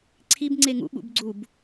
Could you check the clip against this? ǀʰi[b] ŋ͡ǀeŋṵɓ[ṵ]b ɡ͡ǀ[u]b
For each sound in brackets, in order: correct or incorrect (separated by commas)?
correct, correct, correct